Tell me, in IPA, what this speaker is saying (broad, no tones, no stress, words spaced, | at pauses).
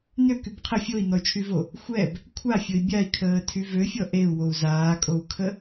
nøkyb qʰə fʲoi̯nɔy̯t͡ʃʰyvo | xʷɛb | kʷʰafʲoi̯ bʲai̯kʰəːtʰy vøfʲɔ ʔeu̯wou̯ zaːkʼou̯kʰə